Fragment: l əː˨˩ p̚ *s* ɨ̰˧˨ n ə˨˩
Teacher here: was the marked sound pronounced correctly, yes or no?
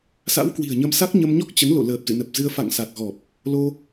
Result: no